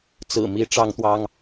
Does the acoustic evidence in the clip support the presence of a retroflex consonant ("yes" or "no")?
yes